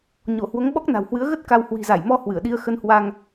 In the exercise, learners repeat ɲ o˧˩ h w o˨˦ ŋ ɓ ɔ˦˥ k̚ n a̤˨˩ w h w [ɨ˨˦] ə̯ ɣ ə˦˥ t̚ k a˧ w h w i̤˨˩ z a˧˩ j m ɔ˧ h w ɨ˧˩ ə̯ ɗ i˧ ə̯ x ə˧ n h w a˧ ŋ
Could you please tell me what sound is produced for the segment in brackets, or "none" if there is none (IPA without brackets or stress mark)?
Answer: ɨ˨˦